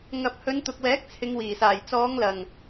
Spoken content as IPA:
ŋ ɐ˨ p̚ h ɵ˨˧ n t̪ ʊ˨ k̚ w ɛː˨˥ k̚ t͡sʰ ɪ˨˧ ŋ w iː˨˩ s aː˨˩ j t͡s ɔː˨˧ ŋ l ɐ˨˩ ŋ

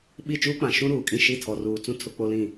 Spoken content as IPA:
ɓ i˦˨ t͡ʃ uː˦ k͡p ã˨ ʃ ũ˦ ɾ uː˨ kʼ ĩ˦˨ ʃ i˦˨ tʰ ɔ˨ r uː˨ t͡s ũ˦ tʰ ʊ˦ k͡p o˦ l ĩ˦˨

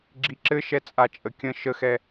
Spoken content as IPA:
ɡ͡ǁ i ǁ ɘ ʃ ɛ t͡sʼ a t͡ʃʼ ə kʲ ə̃ ʃ ə x ɛ

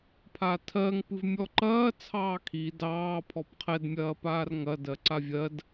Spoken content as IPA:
pʰ a tʰ ɜ ŋ p ɨ v mʲ ɔ ǃ ɐː t͡sʰ ɑː kʰ i d ɑː pʰ ɔ p qʰ ɛ d mʲ ɐː p aː r ŋ ɐ d ɜ ǀ a vʲ ɜ d

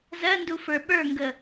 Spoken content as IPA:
z ɜ n d u f ə˞ ɓ ə˞ ŋ ɡ ə

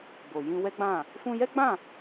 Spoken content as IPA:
b o˨ j ĩ˧ w ɛ˦ ɡ͡b ã˦˨ | f ũ˧ j ɛ˦ ɡ͡b ã˦˨

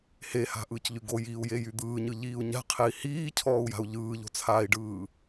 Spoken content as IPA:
h e h a̤ ʔ ɯː c ʎ y ɡ o j iː u̯ j e j y d̪ ɯː ɲ ɯ ʎ iː u̯ ɲ a̤ qʰ e i̯ h iː cʰ ɔː u̯ j a̤ u̯ ʎ ɯː ʎ o̤ t͡sʰ aː i̯ ɖ ɯː

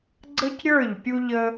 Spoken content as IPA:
ɡ͡ǀ ə˦ c ɾʲ ə˞˦˨ ʎ pʲ u˦ ʎ ə˦

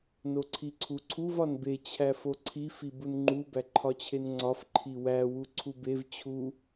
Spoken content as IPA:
n o ǀʰ i ǀʰ u ǀʰ u v ɒ n b e t͡ɕʰ æ f o ǀʰ i f i b u n ŋ͡ǃ u b æ ǃʰ ɒ t͡ɕʰ e n ŋ͡ǀ ɒ f ǃʰ i w æ w u ǀʰ u b e v t͡ɕʰ u

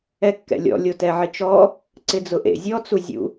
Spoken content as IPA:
ɛ kː ɛ̰ lʲ ɔ̰ lʲ o t ɛ ʕ ɪ t͡ʃ ɔ | ǀ ɪ d͡z ʊ ʔ ḛ zʲ ɔ t͡s u zʲ ṵ

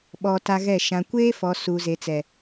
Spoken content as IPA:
ɓ ɔ˨ t a˦ ɣ ɛ˦˨ ʃ ã˨ kʷ eː˦ f ɔ˨ s u˨ z e˨ t͡s ɛ˨

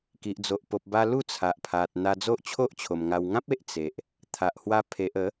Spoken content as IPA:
k i˨ ʔ d͡z o˨ ʔ p o˨ p̚ b a˧ l u˥˧ t͡sʰ a˨ ʔ pʰ a˨ t̚ n̪ a˧ d͡z o˦ ʔ t͡ɕʰ o˦ ʔ t͡ɕʰ o˨˩ m ŋ a˧ w ŋ ã˦ p̚ e˨ ʔ t͡s e˨ ʔ | t̪ʰ a˨ ʔ h w a˧ pʰ e˨ ʔ ə˨˦

